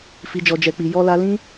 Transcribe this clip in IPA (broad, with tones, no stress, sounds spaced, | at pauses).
f i˨ d͡ʒ ɔ˨ d͡ʒ ɛ˨ k͡p i˨ j ɔ˧ l a˧ l ĩ˦